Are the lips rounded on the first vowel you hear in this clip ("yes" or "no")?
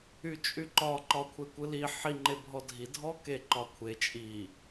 yes